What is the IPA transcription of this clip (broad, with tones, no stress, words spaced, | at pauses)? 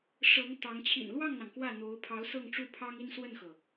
ʂɤ˧˥ŋ t̪ɑ˧˥ŋ t͡ɕʰḭ˨˩nlwɑ˥˩ŋn̪ɑ˩ŋ kwä˥˩n̪o˧˥ʊ̯ pʰɑ˧˥ʊ̯sɤ˥˧ŋʈ͡ʂu˥˩ pʰɑ˥ŋi˥nswə˥˩nxɤ˩